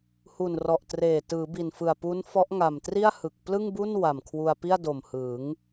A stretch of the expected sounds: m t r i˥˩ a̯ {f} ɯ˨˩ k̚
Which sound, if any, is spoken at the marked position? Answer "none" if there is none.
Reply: h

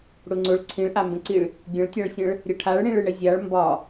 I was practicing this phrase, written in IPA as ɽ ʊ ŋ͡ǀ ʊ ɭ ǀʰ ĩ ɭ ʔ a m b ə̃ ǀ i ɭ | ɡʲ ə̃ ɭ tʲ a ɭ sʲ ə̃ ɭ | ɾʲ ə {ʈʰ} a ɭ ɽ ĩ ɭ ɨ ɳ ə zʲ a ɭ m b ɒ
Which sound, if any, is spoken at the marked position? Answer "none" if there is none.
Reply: ʈʰ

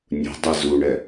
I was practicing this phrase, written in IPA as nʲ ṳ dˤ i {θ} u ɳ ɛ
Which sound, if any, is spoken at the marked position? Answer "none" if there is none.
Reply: z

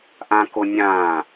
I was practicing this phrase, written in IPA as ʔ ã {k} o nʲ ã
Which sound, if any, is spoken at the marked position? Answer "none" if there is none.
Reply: k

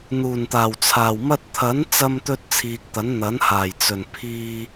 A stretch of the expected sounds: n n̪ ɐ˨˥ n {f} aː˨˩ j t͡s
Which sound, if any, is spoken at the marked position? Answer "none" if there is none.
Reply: h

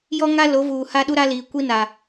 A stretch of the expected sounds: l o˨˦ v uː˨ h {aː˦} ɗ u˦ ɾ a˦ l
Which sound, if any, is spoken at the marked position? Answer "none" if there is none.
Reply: a˦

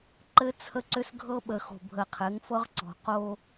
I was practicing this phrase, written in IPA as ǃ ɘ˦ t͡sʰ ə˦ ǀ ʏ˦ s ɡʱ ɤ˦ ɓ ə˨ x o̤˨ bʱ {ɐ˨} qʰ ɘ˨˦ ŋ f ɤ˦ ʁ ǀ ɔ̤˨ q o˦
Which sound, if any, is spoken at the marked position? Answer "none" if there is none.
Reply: ə˨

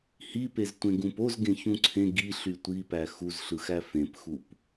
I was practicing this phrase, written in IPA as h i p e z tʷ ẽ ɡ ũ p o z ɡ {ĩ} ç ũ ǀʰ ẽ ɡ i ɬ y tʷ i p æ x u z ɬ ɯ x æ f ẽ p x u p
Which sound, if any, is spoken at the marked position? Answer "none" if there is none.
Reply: ẽ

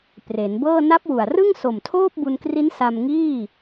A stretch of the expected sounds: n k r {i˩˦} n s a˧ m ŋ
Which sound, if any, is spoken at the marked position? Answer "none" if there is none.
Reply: i˦˥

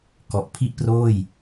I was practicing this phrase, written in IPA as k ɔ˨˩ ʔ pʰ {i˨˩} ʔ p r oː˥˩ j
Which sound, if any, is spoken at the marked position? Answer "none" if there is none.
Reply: i˥˩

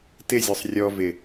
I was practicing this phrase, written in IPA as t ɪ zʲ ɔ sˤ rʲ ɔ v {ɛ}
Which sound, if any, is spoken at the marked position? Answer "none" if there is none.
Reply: ɪ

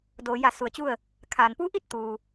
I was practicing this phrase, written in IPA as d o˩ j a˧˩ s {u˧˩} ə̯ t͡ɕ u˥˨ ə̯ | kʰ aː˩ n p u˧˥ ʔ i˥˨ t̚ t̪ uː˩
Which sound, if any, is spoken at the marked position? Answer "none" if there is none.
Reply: u˧˩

